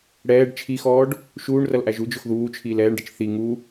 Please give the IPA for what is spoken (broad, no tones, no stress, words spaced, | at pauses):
ɽɛːɖ t͡ʃʰixɔːɖ | ʃuːɳrʌlʔæʒ ud͡ʒʊx ðuːt͡ʃʰiːl ɛːɳɖət͡ʃ θi ŋu